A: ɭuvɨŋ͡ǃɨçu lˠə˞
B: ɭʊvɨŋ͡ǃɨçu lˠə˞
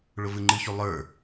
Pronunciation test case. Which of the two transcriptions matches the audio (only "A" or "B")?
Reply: B